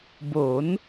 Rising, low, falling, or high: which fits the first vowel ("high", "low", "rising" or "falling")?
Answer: rising